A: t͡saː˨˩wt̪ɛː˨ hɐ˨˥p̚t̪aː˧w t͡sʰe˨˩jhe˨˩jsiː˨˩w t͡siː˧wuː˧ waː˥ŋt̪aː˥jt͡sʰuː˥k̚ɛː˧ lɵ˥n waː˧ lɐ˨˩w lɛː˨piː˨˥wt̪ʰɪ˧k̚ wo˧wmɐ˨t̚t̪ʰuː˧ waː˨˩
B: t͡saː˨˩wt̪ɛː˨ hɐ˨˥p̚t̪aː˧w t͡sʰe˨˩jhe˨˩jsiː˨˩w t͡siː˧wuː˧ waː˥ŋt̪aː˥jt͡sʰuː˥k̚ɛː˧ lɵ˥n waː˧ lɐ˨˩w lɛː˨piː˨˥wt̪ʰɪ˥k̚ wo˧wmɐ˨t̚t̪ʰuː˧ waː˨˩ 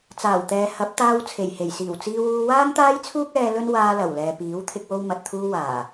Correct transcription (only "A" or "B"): A